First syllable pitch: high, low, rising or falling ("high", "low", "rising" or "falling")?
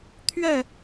falling